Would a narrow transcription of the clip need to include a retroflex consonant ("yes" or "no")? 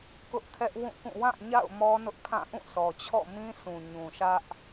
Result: no